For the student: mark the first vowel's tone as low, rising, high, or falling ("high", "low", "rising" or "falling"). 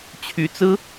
rising